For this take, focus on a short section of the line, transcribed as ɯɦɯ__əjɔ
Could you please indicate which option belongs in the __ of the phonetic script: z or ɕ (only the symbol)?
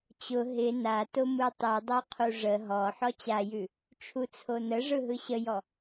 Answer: ɕ